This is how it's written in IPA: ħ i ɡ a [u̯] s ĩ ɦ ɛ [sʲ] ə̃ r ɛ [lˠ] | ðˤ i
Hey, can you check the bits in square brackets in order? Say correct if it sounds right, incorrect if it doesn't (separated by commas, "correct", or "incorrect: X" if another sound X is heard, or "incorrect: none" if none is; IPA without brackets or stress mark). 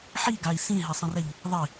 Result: incorrect: i̯, incorrect: sˤ, incorrect: ʎ